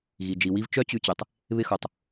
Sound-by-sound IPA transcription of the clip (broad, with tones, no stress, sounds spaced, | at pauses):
ɣ i˨ d͡ʒ i˨ w i˦ v t͡ʃ œ˦ t͡ɕ ʉ˧ t͡ɕ e˨ tˤ | β ɪ˧ x o˨ tˤ